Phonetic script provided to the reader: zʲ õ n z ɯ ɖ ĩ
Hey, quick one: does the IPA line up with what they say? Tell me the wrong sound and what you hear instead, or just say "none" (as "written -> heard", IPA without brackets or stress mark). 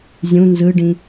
õ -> ũ